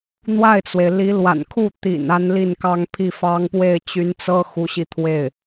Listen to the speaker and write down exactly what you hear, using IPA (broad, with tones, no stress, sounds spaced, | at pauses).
n̪ w a˥˩ ɪ̯ t͡s w e˩ ɪ̯ l i˧˥ l w a̰˨˩ n kʰ u˥˩ t̪ ḭ˨˩ n a˥ n l i˥˩ n k ɑ˥ ŋ pʰ i˥˩ f ɑ˥ ŋ p w e˥˩ ɪ̯ t͡ɕ y˧˥ n t͡s ɤ˥ x u˧˥ ɕ i˧ t̪ʰ w e˥˩ ɪ̯